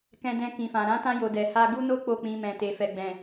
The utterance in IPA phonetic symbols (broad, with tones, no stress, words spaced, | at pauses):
kɛ̃˧dɛ̃˧ kĩ˨fã˨ ɾã˨˦tã˧jo˨ dɛ˨ha˧ɡu˦no˦ k͡po˦˨k͡pĩ˧mɛ̃˨ te˨fɛ˨ɡ͡bɛ̃˨